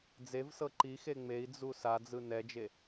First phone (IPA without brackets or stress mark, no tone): d͡z